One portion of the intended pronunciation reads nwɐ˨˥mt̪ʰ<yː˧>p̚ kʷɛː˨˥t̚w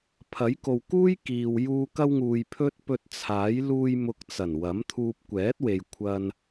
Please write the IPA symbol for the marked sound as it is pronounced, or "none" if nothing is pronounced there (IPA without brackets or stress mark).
uː˧